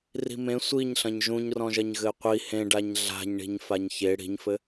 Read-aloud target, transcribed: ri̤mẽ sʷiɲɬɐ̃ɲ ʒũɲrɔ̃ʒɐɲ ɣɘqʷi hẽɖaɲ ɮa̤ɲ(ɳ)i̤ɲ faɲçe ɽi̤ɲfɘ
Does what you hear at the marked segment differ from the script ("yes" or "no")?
no